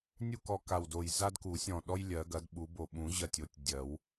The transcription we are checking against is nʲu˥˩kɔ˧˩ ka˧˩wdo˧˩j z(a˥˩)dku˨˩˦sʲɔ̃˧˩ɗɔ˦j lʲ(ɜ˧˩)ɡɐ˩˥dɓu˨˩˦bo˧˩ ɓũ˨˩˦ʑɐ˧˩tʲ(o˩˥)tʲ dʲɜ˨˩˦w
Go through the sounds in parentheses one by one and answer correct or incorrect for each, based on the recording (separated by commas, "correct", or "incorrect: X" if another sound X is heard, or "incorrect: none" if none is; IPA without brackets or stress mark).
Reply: incorrect: a˦, incorrect: ɜ˨˩˦, correct